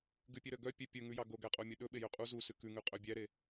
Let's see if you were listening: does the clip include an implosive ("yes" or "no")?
yes